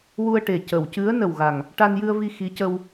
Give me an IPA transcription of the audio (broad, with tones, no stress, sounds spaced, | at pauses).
w u˧ ə̯ ʈ e˨˩ c ə˨˩˨ w c ɨ˧˥ ə̯ n ə˨˩ w ɣ a˨˩ ŋ | ʈ a˧ n j ɨ˧ ə̯ v i˧ x i˧˥ c ə˧ w